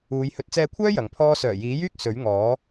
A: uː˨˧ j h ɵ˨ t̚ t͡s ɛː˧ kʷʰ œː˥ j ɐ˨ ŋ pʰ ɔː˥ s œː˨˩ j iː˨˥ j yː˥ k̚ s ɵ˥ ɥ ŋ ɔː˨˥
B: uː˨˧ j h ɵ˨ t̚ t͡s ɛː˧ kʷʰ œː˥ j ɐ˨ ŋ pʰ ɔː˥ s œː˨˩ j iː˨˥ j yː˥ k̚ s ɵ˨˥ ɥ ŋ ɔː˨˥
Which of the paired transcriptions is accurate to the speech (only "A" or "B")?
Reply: B